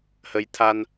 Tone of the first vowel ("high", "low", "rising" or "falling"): rising